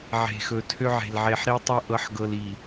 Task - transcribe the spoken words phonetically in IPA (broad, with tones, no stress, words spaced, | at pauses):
ʕe̤˨xɵ˨tʰø˦ʕe̤˨l ʕe˨ħɾi˦ tˤɤ˦ʔɤ˨˦ħɡɤ˨l i˨